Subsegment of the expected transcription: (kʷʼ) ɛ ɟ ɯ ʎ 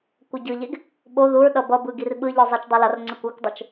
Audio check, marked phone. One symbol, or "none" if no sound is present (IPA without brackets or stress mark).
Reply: kʷ